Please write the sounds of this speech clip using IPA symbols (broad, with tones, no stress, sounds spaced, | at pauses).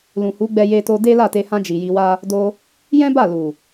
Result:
l ũ˨ h u˨˦ ɡ͡b ɛ˧ j e˧ t o˧ d e˦ l a˦˨ t e˧ h ã˧ d͡ʒ i˨ j i˧ w a˦ | d o˧ | j ɛ̃˦ b a˦˨ l u˨